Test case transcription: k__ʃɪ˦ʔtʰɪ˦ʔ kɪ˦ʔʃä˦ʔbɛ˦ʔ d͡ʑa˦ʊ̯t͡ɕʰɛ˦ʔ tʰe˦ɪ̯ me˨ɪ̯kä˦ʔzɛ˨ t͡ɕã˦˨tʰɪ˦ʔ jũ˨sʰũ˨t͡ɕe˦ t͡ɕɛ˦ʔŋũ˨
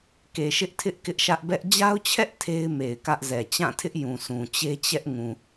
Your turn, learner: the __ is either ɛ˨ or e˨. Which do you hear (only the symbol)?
e˨